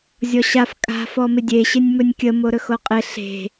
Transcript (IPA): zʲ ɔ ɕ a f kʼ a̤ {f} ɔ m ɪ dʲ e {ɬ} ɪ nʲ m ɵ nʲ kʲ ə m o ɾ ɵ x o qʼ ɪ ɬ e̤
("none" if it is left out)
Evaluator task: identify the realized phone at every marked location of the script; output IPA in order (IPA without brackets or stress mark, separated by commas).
f, ɕ